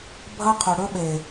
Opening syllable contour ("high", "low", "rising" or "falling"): high